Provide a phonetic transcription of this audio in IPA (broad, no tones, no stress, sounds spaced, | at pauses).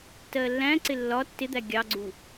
t ɜ lː æ̃ ǀ ɪ lː ɒ tː ɪ d̪ æ ɡʲ ɑ ɡ͡ǀ u